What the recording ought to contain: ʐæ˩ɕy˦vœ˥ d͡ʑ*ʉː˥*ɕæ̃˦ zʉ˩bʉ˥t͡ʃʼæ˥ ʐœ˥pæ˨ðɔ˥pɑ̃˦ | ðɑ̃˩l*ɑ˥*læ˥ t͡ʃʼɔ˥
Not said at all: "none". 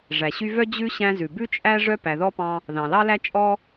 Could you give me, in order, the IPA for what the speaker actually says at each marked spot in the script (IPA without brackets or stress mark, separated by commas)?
ʉ˥, ɑ˥